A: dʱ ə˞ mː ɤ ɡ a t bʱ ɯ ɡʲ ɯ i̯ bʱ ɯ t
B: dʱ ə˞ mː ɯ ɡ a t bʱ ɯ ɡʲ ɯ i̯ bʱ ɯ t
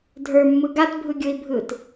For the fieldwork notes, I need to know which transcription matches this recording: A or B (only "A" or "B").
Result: B